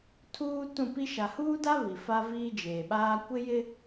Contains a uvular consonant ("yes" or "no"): no